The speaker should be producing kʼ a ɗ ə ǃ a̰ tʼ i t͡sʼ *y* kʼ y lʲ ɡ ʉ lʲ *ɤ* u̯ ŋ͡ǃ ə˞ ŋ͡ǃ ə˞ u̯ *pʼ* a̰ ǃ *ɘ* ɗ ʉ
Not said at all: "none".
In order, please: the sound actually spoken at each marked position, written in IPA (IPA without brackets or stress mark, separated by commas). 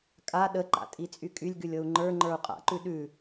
y, ɤ, qʼ, ʉ